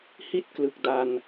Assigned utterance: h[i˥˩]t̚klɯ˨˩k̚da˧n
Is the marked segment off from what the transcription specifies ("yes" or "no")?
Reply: no